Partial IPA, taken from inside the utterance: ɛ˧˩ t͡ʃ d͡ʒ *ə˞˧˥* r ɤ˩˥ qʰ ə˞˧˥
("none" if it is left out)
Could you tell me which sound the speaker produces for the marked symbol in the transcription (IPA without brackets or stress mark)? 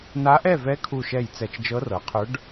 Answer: ɤ˧˥